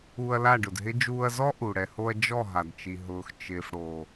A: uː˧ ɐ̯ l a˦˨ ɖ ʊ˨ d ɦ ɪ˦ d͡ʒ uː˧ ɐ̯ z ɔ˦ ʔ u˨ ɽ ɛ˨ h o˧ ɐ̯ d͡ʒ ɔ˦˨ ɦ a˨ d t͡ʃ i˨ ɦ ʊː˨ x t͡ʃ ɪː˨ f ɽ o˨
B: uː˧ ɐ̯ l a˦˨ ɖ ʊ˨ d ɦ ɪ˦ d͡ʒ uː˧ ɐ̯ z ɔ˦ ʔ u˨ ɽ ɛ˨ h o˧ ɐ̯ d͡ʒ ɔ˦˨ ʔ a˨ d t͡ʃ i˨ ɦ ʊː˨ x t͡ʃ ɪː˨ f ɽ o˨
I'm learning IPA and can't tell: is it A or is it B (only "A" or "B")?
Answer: A